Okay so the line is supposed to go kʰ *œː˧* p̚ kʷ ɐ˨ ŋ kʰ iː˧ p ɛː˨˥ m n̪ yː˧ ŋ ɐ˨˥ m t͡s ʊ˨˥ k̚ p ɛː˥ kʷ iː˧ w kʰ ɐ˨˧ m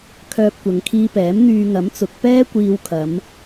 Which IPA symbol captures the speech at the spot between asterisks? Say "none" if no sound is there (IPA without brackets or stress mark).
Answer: œː˧